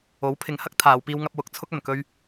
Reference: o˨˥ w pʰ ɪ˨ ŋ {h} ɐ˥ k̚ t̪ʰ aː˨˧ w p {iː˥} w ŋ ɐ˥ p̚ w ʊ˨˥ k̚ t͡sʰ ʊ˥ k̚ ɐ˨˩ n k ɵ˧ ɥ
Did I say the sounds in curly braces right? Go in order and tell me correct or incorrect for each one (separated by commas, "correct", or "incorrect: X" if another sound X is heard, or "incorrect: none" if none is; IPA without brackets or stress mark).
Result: correct, correct